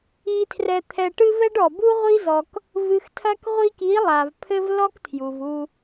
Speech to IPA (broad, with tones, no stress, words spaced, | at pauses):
i˧tʰrɛ˧t̪ʰɛ˧ ʈɨ˦vɛ˦ɖɔ˨ bu˦ʁʷi˦zɔ˧k | vɨ˨xtʰɐ˧kʁʷi˧ki˨˦ lˠa˨vpʰɘ˦vlɔ˦ktʰju˨v u˧